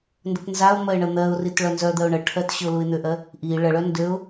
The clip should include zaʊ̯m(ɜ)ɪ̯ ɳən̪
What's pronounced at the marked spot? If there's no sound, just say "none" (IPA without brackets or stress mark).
ɜ